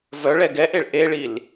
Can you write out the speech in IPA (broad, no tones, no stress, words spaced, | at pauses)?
vœɭɛ ɡɛʔeɭ ʔeɭil